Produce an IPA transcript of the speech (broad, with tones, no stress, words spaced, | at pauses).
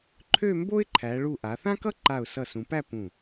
ǃʰø˥˧mbo˥ɪ̯ǃʰæ˩˧ ɭu˧˩ʔa˩˧θã˥kʌ˥ ǃa˧˩ʊ̯sʌ˧˩sũ˩˧pæ˥˧ pũ˧˩